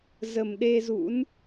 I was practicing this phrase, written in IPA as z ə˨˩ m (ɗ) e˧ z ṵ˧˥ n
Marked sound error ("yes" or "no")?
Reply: no